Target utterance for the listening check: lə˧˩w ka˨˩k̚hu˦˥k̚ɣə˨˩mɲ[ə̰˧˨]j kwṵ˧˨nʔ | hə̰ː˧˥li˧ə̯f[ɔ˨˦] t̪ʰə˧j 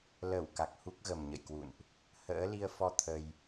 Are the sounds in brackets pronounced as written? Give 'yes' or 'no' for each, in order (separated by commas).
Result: yes, no